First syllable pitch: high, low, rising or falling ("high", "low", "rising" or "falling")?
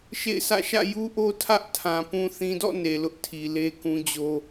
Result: falling